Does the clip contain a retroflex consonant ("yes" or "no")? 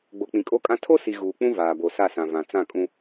no